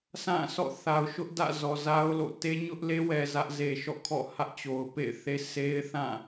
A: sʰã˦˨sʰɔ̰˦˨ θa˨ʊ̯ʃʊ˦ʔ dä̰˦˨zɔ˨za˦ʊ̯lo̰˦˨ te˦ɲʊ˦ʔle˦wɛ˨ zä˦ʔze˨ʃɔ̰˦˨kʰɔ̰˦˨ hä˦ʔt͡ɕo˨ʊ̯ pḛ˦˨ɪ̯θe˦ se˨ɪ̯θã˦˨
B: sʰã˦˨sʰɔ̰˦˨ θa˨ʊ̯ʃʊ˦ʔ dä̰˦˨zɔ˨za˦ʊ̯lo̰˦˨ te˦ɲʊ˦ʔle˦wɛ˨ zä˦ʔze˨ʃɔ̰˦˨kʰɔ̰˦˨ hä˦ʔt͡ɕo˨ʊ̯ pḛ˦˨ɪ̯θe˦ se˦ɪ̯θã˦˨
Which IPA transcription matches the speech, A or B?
B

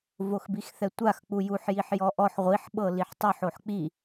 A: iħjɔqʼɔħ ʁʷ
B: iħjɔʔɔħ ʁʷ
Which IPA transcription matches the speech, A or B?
B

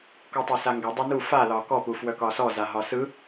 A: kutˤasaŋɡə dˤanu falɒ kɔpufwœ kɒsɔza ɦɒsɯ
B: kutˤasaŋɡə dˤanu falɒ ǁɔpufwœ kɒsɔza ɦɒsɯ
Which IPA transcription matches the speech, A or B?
A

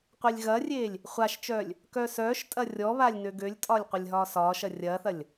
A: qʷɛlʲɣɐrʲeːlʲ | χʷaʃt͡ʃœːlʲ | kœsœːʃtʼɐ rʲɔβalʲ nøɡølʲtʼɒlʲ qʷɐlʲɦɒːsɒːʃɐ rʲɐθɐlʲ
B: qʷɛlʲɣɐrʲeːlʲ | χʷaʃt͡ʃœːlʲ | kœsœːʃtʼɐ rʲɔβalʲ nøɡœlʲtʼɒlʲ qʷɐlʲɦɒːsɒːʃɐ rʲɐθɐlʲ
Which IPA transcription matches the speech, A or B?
A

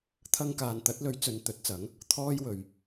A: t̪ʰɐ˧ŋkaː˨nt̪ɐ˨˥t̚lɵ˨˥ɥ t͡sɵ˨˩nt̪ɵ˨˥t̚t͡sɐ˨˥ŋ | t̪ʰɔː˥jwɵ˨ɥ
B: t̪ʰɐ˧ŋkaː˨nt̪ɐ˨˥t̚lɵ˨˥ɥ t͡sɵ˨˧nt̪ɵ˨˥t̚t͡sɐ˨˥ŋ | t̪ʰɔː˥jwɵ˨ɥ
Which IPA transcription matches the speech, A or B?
B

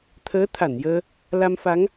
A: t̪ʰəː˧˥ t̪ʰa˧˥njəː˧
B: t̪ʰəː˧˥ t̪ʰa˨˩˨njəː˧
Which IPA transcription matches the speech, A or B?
B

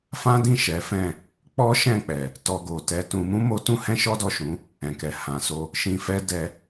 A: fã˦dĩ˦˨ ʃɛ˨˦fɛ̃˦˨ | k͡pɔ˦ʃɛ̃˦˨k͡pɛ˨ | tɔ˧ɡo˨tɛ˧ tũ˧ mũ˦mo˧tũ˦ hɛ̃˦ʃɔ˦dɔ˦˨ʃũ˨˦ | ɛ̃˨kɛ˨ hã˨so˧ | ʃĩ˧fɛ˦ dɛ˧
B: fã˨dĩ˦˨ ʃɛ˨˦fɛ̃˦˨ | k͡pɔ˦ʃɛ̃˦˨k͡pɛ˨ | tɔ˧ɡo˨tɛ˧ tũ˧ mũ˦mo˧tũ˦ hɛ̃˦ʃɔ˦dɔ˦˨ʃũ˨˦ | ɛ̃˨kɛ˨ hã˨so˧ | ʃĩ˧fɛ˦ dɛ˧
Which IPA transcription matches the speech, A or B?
A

